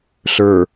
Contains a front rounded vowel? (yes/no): no